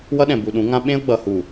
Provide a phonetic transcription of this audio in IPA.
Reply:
w ʌ˦ ɗ ɛ̃˨ b u˨ ɗ ũ˨˦ ŋ ã˦ ɓ ẽ˦ ʊ̯ ɡ͡b ʌ˨ h u˨

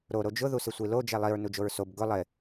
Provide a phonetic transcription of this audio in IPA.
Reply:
ɾ o ɾ o d͡ʒ ʊ ð u s ɪ sʷ i l o d͡ʒ ɛ lˠ i ɹ n u d͡ʒ o ɹ s o b ɡ ʊ lˠ ɪ

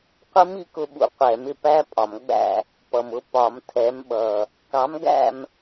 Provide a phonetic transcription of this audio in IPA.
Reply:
qʷ ə˦˥ m i˨˥ k ʊ˧ ɓ ṵ˧ qʷ ɛ˨˩˦ m ɪ˧ p æ˦˥ pʼ ɒ˨˩˦ m ɡ͡b æ̰˥˨ | p ʌ˨˩ m ʊ˥˨ p ɒ˨˩˦ m tʰ ɛ˨˥ m ɓ ʌ˨˩ | k ɑ˨˥ m ɡ æ̰˥˨ m

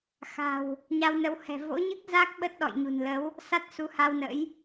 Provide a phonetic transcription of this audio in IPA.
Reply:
x a̤˨˩ w | ɲ a˧ w n ə˨˦ w h ɛ̤˨˩ v o̰˧˥ ɲ ɨ˦˥ k̚ z a˦˥ k̚ ɓ ə˦˥ t̚ ɗ ɔ̰˧˨ j ɲ ṳ˨˩ n l ə˨˦ w | s a˦˥ t̚ s u˨˦ h a˧ w n ə̰˧˥ j

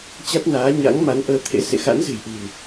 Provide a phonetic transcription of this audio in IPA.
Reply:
t͡ɕ a˦˥ t̚ n aː˨˦ ɲ a̰˧˥ ŋ m a˨˦ n ʔ əː˧ t̪ʰ ḛ˧˥ s ḛ˧˨ x a̰˧˥ n z ɨ̤˨˩ j ʔ ɨ̤˨˩ n

